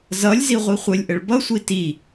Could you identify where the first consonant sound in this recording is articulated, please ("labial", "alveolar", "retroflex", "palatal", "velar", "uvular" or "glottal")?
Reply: alveolar